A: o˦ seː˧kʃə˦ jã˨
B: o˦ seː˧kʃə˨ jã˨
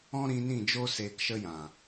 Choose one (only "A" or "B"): A